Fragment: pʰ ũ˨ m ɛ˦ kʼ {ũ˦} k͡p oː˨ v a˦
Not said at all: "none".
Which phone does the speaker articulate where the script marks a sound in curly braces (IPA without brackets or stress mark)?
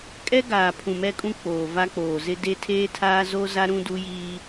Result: ũ˦